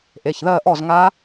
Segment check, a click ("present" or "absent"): absent